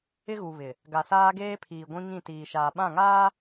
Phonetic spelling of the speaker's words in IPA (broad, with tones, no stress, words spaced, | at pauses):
ɪ˦ɣu˨ βɪ˨ | ɡa˨ saː˦ɡeː˦pʰiː˨ ɡʷĩ˦ŋĩ˦˨tiː˨ʃaː˨ ɓã˦˨ŋaː˦